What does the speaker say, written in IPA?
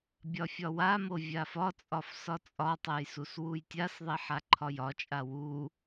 bʲ ɒ fʲ ɒ w a m o vʲ a f ɒ t͡sʼ ɒ f s ɒ t͡sʼ ɒ tˤ ɛ j s u s w u j tʲ a s ðˤ i ħ a ǃʰ ɒ j ɒ t͡ʃʼ a w u

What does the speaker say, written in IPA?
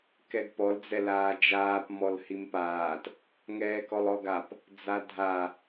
k ɛ ɡ p ɔ l d͡z ɛ l aː d͡ʒ aː p m ɔ l h i m p aː t | ŋ ɛː k ɔ lˠ ɔ ɡ a p | d͡z a dʱ a

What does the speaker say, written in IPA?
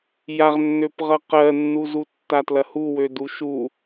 j a ʁ nː ø p ʁ ʌ q ɜ nː u z u tː a t l ɐ h u w ø d u ʃ u

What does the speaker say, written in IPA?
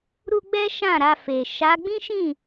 ɾ u˧ ɡ͡b ɛ˦ ʃ ã˦˨ ɾ a˧ f e˨ ʃ a˨˦ ɡ͡b ĩ˦ ʃ ĩ˦˨

